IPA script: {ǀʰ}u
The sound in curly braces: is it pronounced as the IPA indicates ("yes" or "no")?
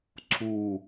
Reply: yes